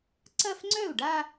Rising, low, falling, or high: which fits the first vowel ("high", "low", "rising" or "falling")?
falling